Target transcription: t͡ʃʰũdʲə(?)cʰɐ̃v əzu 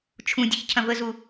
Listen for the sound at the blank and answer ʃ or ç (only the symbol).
ç